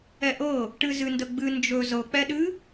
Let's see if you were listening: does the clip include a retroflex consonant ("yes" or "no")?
yes